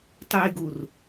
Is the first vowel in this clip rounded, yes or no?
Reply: yes